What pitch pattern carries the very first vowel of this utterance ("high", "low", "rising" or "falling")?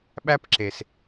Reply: high